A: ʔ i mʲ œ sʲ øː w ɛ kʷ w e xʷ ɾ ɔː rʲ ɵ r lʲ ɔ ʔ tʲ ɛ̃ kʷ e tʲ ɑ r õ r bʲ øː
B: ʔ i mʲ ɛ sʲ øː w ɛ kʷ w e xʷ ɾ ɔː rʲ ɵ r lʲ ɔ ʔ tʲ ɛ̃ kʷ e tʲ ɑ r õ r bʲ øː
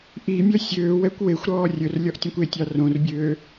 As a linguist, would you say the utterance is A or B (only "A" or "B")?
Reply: A